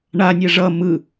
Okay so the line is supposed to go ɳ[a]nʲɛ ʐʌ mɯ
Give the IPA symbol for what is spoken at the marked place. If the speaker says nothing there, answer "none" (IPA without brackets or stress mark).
a